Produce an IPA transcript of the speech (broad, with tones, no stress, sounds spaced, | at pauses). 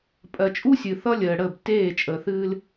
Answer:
pʼ ɜ˨ t͡ʃʼ u˦ sʲ ɨ˨ θ ʌ˦ lʲ əː˨ ɽ ə˦˨ b t eː˦˨ t͡ʃʼ əː˨ θ ɨː˦ l